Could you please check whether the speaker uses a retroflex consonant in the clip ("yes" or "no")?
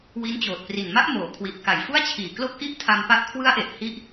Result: no